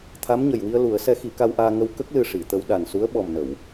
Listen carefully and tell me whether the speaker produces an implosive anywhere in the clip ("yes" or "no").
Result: yes